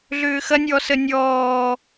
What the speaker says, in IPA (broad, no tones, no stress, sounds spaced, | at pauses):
ɮ ʏː x ɐ nʲ ɔ s ə nʲ ɔː